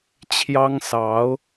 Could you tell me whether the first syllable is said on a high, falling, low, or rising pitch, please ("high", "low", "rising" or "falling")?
high